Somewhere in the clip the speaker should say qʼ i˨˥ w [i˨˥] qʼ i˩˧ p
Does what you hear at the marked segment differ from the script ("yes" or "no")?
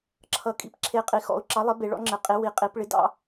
no